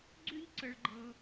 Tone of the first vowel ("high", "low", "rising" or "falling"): high